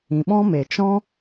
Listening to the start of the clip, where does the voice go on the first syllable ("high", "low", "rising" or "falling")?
low